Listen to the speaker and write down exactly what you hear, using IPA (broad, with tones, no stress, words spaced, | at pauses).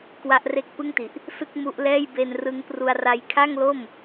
kwa˦˥ʔre˦˥k̚pɯ˥˩ŋti˨˩ʔ | sɯ˥˩k̚mu˦˥ʔlɛː˥˩j be˧nrɯ˦˥ŋpru˧a̯ra˦˥j kʰa˥˩ŋlo˥˩m